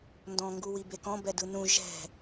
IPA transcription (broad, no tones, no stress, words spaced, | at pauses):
ndɔ̃ ŋɡuwibekɔ̃ bɛdɯnũ ʒɛ̤